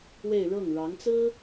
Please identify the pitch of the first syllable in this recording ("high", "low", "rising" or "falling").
falling